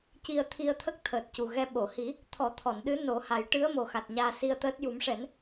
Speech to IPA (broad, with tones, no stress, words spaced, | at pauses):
ci˧ə̯t̪ʰi˧ə̯t̪ʰə˦˥k̚t̪ʰəː˨˩t̚ cu˨˩ɣɛ˧ ɓo˨˩˨hi˨˩˦ | t̪ʰɔ˨˩˦t̪ʰɔ˨˩˨nɗɨ˧˥ no˨˩˦ha˨˩˦j ʈɨ˧˥ə̯mo˨˩xa˨˩t̚ ɲaː˧si˧ə̯t̪əː˦˥t̚ ju˨˩˦mʂɛ˨˩˦n